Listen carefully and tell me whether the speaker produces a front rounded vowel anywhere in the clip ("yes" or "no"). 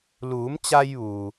no